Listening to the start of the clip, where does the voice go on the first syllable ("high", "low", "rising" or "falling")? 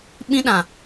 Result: high